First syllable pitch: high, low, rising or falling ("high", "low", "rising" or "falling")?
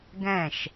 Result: falling